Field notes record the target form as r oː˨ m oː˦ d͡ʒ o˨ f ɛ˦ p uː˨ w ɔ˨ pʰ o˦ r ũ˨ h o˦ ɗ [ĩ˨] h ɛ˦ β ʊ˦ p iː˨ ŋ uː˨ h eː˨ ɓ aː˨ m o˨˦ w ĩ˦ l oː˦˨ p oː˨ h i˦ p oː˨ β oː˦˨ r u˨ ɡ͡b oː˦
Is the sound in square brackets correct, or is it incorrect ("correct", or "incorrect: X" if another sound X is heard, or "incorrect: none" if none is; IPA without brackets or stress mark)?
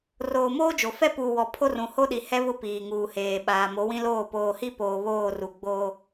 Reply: incorrect: i˨